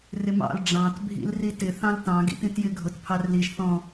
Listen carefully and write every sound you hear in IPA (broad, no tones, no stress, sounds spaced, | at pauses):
r ɪ m ɑ̰ l ɖ͡ʐ ɑ̃ t bʱ ḭ l r i t ɪ θ ɑ̃ l t ɑ̃ ɡ ḭ t ĩ t j ɪ ɡʱ ʊ t pʰ ɑ r l i ʒ θ ɔ̃